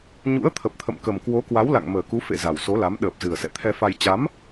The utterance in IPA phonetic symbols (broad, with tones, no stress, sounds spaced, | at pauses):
ɲ ṵ˧˥ ə̯ t̪ʰ ə˨˩ p̚ t̪ʰ ə̰˧˨ m k ə˨˩ m k w o˨˦ k w a˨˦ w l a̰˧˨ ŋ m əː˨˩ k u˨˦ f ḛ˧˨ z a˨˩ w s o˨˦ l a˨˦ m ɗ əː˨˩ p̚ z ɨ˨˩ ə̯ s ɛ̰˧˨ t̪ʰ ɛ˧ f a˧ j t͡ɕ a˨˦ m